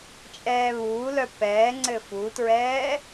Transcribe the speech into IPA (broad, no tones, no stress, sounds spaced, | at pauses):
t͡ʃʼ ɛː β uː l œ p ɛː ŋ͡ǀ ɘ f u t ɹ ɛː